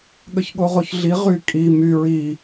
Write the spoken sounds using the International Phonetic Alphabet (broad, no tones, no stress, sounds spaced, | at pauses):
ɠ ə ç ɠ o ʁ o ç ɮ i ʁ y kʼ i m y ɹ i